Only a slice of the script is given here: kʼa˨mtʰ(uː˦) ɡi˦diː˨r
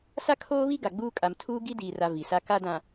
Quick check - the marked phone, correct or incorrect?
correct